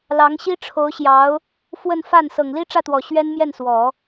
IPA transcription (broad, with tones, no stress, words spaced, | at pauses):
lɑ˧˥ŋɕi˥ʈ͡ʂʰo˧˥ʊ̯ɕjɑ˧˥ʊ̯ | fwə˥˧nfa˥˩n sɤ˨˩ŋli˥ʈ͡ʂä˥˩t̪wɔ˨˩ ɕɥɛ˥nmjɛ˥˩nswɔ˨˩˦